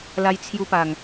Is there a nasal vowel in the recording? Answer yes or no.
no